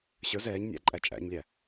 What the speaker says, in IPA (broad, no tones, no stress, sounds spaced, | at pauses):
ɕ ə˞ z ɛː ɲ nʲ æ̰ ǃʼ æ t͡ʃʼ æ̰ ɲ lʲ æ